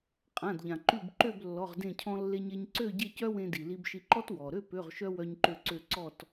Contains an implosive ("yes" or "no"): no